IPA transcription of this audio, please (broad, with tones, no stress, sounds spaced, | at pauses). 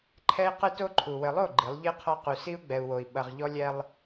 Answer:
ǃʰ ɛ˦ i̯ q ɨ˦ t o˦ ǃʰ u˨ w ɘ˨ lˠ o˦˨ ɡ͡ǃ i˨˦ lˠ ʎ i˦ qʰ ɔ˦ q u˨ s i˦ u̯ ɡ͡b ɛ˨ u̯ w o˨ i̯ ɓ ɐ˨ ʁ ʎ ɔ˦ lʲ ɛ˦ lˠ